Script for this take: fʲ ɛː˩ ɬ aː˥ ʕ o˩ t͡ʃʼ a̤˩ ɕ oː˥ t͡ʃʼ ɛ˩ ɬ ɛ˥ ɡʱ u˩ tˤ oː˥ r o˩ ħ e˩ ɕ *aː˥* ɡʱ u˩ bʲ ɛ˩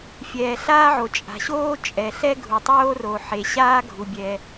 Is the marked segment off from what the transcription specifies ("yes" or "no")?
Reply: no